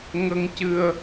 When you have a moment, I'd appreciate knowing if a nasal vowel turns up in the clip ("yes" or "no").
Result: no